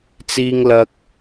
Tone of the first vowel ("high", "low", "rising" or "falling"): high